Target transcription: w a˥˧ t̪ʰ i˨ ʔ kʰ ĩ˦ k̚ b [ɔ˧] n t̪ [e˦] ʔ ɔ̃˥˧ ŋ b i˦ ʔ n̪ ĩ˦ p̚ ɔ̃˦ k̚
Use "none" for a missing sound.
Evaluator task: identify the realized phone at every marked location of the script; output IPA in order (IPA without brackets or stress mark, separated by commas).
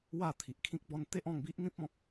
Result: ɔ˦, e˦